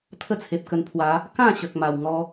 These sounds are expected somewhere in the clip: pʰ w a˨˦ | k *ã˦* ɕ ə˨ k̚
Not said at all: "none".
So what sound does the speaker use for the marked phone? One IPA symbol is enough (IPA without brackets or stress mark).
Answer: ã˥˧